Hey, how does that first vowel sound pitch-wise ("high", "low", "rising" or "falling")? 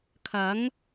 rising